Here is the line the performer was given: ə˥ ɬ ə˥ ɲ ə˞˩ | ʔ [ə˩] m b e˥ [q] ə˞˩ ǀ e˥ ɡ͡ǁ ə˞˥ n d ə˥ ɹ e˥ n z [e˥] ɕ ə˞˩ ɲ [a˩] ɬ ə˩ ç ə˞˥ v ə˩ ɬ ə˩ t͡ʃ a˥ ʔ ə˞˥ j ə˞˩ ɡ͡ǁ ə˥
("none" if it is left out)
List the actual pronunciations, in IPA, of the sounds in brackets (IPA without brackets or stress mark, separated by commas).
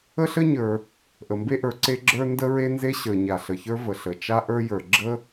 ə˩, ʔ, e˥, a˩